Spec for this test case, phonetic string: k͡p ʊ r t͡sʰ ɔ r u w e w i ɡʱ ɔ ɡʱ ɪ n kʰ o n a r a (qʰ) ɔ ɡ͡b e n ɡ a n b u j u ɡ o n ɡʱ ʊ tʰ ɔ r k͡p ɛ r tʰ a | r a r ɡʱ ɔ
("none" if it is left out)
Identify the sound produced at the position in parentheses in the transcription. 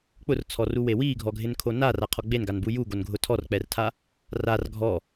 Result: qʰ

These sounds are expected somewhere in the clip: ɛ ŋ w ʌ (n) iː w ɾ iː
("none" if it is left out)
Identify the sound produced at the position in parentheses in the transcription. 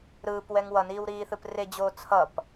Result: n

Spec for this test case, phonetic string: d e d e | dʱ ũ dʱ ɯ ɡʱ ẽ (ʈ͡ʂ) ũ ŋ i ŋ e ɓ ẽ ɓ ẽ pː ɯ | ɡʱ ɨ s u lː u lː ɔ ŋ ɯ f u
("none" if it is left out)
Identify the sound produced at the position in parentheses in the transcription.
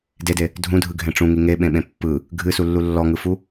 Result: ʈ͡ʂ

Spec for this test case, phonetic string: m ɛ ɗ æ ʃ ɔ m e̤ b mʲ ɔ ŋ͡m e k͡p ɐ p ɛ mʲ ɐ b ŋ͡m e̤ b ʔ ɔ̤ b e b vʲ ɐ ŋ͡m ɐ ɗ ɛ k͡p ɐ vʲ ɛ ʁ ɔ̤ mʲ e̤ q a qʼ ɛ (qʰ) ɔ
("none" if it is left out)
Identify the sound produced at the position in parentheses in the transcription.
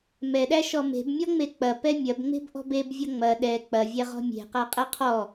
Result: qʰ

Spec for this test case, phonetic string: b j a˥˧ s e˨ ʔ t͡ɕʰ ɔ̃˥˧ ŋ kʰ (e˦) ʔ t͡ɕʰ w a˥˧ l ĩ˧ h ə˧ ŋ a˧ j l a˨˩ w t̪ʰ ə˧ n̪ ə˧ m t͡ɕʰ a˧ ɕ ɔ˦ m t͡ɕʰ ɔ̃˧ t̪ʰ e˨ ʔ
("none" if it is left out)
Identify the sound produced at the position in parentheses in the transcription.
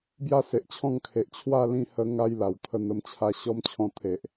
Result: e˨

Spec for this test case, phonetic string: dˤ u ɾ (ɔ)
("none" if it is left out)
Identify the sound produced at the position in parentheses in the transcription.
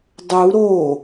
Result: o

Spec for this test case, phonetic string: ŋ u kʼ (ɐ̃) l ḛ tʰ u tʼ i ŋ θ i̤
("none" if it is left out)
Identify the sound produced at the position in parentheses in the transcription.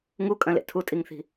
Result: ɐ̃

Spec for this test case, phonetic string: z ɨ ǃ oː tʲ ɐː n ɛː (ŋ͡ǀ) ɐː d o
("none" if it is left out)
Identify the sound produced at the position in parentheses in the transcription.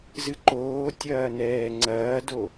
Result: ŋ͡ǀ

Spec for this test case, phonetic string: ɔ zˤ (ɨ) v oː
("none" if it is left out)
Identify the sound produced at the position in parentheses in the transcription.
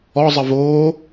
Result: ɨ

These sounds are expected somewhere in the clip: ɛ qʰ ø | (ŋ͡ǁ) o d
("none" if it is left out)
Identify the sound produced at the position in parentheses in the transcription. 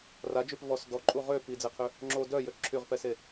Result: ŋ͡ǁ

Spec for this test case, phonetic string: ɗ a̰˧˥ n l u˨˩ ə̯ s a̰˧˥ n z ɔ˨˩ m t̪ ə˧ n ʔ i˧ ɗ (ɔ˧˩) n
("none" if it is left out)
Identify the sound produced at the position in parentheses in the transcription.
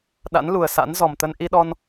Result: ɔ˧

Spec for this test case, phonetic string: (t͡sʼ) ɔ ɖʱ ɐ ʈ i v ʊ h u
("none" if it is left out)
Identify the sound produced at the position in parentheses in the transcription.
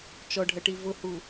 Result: t͡ʃ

